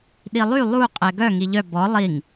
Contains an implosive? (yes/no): yes